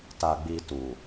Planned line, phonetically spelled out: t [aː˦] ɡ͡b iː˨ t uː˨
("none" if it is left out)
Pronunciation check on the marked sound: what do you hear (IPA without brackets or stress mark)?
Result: aː˨